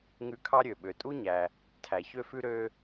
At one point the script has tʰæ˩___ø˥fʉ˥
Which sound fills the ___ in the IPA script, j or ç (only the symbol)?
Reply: ç